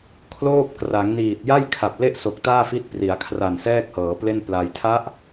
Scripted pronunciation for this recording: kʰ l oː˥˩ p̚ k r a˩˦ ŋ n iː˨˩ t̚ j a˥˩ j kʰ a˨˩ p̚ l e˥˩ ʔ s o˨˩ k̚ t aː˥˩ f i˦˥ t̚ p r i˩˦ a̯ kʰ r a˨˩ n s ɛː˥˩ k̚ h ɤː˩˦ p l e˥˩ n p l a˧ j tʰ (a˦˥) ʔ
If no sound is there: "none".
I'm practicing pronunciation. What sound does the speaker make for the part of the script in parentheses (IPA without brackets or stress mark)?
a˦˥